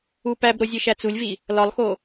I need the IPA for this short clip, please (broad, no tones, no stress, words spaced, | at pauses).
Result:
upæbɾo zʲeʃæt͡sulʲvi | lɒlˠxo